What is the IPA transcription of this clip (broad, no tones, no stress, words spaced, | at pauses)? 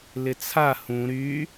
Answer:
lɪt͡sʰa hũ ɾy